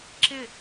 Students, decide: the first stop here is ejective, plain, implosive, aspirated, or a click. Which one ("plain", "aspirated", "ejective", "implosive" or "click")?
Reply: click